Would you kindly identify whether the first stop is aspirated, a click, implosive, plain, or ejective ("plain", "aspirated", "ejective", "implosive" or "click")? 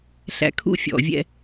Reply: aspirated